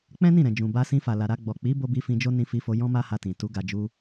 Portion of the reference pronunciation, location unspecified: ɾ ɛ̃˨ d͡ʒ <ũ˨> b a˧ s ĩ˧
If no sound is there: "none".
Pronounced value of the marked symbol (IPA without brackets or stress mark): ũ˨